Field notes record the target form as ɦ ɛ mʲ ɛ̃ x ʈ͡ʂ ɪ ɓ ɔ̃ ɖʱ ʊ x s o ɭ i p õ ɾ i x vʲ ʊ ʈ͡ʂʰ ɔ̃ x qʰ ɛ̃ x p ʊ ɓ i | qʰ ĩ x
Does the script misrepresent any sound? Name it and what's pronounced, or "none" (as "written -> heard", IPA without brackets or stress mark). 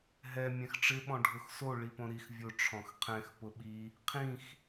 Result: none